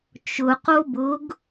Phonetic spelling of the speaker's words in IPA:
t͡ʃʊqo bʊɡ

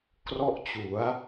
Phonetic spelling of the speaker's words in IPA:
krɔ˥˩ʔt͡ɕu˩˦a̯

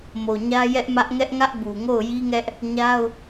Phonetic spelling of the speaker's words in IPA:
mo˨ɲä˦ jɛ˦ʔmä˦ʔ ŋɛ˦ʔŋä˦ʔ bu˨ŋo˦˨ʊ̯ji˦ŋɛ˦ʔ | ɲa˦ʊ̯

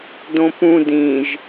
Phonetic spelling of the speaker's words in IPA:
dõpũ dĩʒ

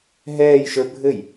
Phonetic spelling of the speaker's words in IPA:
ɦɛːjʃə˞ bʱɘj

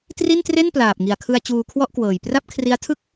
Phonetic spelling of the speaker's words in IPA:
tri˥˩ntre˥˩n plaː˨˩p̚ŋi˨˩a̯kʰɯ˧a̯ t͡ɕuː˧kʰwɔ˥˩ʔkwɤː˨˩j pra˥˩p̚kʰri˦˥a̯ tʰɯ˥˩k̚

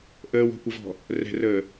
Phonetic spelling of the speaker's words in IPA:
ʔəːwɔ̤kʷəvɔ̤ | rɛ̤rəː

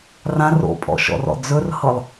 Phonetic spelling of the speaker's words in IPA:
rãro̰pʼɔ̰ʃɔ̰r ɔ̰d͡zɵrhɤlˠ

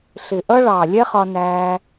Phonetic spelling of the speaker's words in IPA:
ɬɪ˨ʔʌ˦ ɭɑː˨lʲɛ˦χɒ˧ næː˧

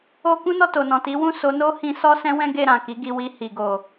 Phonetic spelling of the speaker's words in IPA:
o˧ kũ˦nɔ˦˨to˨nɔ̃˨ ti˨˦wũ˦˨ so˨˦no˦ hĩ˧sɔ˦ sɛ̃˦wɛ̃˦ ɡe˦˨ɾã˨ki˨˦ɡi˧ wi˧hi˨ɡo˨

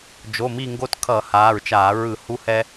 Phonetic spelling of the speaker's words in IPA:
d͡ʒo˩˧˩mi˦˨ŋɡo˦t kʰʌ˧˩˧haː˩˧˩ɹt͡ʃaː˧˩˧ ɹɯ˧˩˧hu˦hɛ˦

